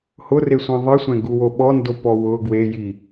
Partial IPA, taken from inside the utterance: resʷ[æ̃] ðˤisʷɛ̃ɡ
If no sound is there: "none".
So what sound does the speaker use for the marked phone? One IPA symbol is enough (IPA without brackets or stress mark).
ã